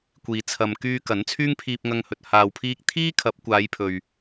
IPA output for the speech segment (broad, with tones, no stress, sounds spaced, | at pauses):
kʷ iː˨ t͡sʰ ɐ˨ m k yː˧ k ɐ˨˥ n t͡sʰ yː˥ ŋ pʰ iː˧ p̚ ŋ ɐ˧ ŋ h ɵ˨ t̚ h aː˨ w pʰ iː˧ k̚ t̪ʰ iː˥ kʰ ɐ˨˥ p̚ kʷ aː˨˧ j pʰ ɵ˨ ɥ